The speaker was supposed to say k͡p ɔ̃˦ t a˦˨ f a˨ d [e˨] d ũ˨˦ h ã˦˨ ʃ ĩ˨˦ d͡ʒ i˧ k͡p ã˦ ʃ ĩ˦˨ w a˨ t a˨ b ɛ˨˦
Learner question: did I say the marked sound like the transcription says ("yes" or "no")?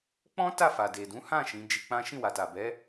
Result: yes